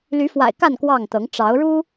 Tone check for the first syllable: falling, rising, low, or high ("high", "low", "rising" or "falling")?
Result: rising